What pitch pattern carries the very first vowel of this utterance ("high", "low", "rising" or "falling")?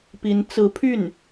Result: rising